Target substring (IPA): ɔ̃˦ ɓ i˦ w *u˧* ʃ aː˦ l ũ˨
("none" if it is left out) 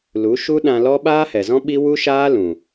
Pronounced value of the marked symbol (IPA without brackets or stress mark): u˦